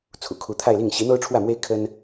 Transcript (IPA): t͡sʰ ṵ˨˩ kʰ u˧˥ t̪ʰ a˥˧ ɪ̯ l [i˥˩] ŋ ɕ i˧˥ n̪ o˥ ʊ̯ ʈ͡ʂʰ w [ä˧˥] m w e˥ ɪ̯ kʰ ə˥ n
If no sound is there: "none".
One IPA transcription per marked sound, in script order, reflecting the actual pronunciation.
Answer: i˥˩, ä˥˩

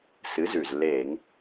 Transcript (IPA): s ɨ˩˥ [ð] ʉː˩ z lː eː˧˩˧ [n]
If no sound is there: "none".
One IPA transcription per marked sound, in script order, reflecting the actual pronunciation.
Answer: z, ŋ

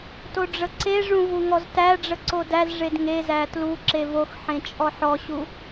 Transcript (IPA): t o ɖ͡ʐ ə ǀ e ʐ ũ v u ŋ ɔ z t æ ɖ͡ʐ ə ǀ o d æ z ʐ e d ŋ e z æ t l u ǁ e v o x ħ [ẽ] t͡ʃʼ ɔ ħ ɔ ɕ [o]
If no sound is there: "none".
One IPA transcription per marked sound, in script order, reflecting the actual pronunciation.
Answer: ẽ, u

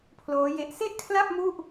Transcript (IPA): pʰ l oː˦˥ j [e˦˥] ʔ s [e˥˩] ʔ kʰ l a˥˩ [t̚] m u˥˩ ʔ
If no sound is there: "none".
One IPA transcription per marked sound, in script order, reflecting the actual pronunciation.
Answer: e˦˥, e˥˩, p̚

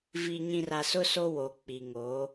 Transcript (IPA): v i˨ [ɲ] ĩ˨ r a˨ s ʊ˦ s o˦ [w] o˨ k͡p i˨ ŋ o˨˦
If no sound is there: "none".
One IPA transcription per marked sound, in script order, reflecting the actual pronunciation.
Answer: ɲ, w

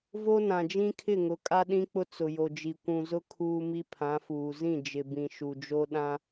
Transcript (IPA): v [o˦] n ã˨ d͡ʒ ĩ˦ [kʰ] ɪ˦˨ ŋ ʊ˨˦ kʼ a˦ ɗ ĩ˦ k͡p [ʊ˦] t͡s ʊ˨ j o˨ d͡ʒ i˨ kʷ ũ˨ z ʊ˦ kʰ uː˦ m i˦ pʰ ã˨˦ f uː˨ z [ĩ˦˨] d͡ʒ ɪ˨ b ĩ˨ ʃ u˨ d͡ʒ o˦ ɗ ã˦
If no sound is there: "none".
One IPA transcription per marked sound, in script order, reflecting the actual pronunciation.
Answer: o˦, kʰ, ʊ˦, ĩ˦˨

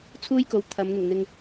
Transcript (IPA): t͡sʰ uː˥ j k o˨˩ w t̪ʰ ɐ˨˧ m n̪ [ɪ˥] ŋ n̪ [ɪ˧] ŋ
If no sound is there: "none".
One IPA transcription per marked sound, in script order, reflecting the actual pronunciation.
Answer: ɪ˨˩, ɪ˨

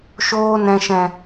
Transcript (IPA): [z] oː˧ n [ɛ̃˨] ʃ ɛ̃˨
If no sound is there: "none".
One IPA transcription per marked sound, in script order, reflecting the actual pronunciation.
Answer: ʃ, ɛ̃˨

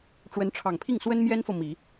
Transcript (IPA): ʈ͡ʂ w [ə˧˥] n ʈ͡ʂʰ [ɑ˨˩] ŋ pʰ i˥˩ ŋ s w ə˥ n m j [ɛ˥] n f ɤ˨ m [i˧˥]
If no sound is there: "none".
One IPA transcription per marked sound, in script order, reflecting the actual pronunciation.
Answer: ə˧˥, ɑ˨˩, ɛ˥, i˨˩˦

